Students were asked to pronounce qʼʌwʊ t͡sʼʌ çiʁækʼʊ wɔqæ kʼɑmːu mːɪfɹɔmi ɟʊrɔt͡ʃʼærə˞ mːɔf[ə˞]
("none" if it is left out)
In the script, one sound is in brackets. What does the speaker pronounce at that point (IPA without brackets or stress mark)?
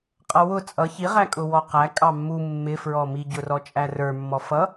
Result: ʌ